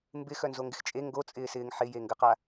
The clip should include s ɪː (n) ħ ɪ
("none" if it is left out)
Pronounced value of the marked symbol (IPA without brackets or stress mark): ŋ